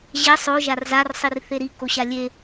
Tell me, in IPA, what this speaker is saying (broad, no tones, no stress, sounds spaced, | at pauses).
ʑ ɛ sˤ o ʒ a r z a r sˤ i r θ e ɾ i k o ɕ a lʲ e